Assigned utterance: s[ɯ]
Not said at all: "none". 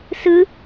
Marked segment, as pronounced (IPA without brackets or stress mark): ɯ